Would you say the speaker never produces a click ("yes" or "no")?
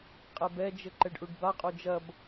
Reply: no